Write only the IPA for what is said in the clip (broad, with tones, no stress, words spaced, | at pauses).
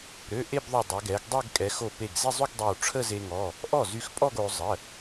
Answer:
ɾø˩˧˩ ʔe˥˧bðˤo˧˩dˤɛ˩˧ ɡɛ˩˧ɡ dˤɛ˥˧ɡkʼɛ˩˧ xo˧˩pe˧˩ɡze˥˧zˤy˥˧ɡ dˤø˧˩wʈ͡ʂʰə˥˧ze˧ŋɔ˩˧˩ | ʔɔ˥˩zy˧xpʼɔ˥˧ɡ o˩˧ zˤə˩˧˩